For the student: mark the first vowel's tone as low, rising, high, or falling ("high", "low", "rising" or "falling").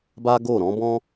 high